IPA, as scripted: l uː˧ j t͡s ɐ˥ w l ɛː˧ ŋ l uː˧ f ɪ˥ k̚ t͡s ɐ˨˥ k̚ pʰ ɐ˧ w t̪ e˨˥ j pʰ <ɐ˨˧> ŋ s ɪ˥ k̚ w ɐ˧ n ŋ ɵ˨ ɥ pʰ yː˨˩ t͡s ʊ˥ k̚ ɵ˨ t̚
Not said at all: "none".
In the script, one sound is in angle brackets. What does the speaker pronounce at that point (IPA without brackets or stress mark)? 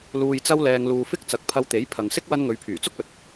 ɐ˨